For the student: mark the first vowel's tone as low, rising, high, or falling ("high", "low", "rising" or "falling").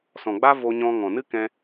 low